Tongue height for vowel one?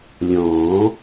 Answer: mid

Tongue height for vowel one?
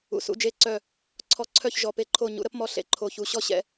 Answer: high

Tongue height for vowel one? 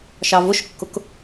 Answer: low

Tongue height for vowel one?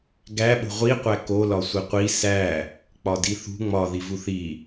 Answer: low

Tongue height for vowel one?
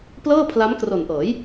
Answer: mid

